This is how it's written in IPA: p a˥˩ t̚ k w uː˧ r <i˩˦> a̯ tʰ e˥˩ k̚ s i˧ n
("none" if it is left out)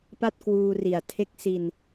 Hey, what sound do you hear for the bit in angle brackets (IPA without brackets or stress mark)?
i˨˩